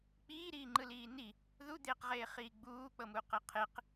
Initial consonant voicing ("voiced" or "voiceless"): voiceless